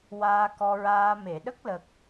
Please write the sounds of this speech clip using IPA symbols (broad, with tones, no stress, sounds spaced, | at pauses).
w aː˧ k ɔ˧ ɹ aː˧ m e˨˩˨ ɗ ə˦˥ k̚ l ə˨˩ k̚